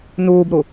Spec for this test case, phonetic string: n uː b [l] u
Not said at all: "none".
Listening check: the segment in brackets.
ɾ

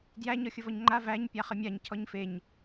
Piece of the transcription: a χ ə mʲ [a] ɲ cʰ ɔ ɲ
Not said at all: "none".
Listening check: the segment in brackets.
a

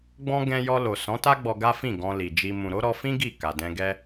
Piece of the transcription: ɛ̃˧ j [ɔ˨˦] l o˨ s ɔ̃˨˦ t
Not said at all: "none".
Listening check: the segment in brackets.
ɔ˧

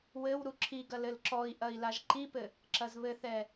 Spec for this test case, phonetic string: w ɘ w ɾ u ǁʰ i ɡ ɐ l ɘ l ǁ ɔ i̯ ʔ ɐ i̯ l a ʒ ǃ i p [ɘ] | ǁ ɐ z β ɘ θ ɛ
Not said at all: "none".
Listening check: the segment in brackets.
ɘ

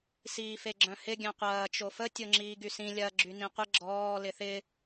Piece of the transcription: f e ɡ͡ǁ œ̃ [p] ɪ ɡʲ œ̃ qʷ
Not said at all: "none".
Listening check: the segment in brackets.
h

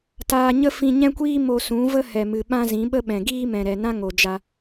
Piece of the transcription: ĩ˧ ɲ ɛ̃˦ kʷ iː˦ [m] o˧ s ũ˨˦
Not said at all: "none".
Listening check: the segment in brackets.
m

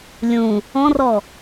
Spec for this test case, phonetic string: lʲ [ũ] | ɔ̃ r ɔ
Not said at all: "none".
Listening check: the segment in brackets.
ũ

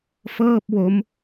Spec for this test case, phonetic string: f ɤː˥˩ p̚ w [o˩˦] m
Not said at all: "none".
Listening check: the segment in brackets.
o˦˥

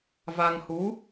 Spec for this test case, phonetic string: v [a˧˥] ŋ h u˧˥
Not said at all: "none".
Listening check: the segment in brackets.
a˧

